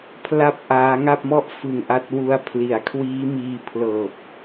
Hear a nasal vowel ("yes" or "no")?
no